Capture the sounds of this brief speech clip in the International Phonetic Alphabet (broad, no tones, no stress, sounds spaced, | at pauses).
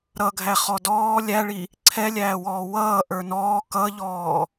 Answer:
ɾ ʌ ɡʱ æ χ ɔ d ɔː lʲ æ ɭ i | ǀʰ ɛ lʲ æː w ɔː w ʌː ʔ ə˞ n ɔː k ʌ ʎ ɔː